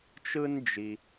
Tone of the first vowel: high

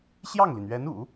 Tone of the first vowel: falling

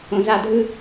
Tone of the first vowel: low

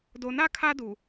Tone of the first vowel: low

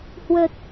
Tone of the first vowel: low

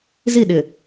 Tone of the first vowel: falling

